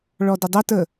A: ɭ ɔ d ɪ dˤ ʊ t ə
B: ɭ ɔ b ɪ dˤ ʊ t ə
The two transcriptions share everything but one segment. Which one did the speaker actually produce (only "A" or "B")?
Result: A